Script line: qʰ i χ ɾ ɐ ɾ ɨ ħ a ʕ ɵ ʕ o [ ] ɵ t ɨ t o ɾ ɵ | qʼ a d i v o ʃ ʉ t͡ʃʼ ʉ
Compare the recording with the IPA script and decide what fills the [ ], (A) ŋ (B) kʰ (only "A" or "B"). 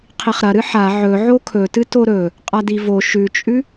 B